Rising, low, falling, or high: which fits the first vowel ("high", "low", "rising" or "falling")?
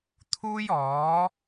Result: high